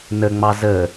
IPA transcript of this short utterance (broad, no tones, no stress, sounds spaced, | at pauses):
n ə ŋ͡m ɑ z ə